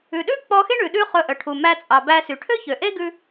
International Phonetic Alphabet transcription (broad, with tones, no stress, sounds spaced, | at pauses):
ʉ˩ ɗ ʉ˥ k͡p ɔ˧ x e˥ ɳ ʉ˩ ɗ ʉ˥ χ ɵ˧ ʔ œ˩ ʈʰ u˩ m æ˧ t͡sʼ ɑ˩ b æ˧ s y˩ ʈʰ ø˥ ç ø˩ ʔ e˥ ɡ ʉ˧